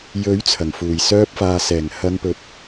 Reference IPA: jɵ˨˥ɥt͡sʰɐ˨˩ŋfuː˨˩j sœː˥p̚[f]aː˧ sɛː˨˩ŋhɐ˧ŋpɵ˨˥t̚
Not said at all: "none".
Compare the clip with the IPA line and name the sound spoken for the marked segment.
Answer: f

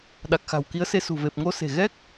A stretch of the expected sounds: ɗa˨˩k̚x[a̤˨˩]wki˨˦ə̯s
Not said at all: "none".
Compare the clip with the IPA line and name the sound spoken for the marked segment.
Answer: a̤˨˩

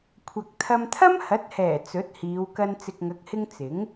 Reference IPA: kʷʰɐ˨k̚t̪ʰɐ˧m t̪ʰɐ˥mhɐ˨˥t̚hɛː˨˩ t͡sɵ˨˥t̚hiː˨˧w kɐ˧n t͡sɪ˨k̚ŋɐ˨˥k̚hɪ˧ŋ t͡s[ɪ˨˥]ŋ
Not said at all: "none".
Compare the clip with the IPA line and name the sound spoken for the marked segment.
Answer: ɪ˨˥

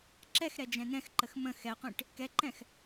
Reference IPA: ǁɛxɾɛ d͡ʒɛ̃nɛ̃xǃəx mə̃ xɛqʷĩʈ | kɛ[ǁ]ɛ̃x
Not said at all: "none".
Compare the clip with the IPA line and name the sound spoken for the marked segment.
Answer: ǃ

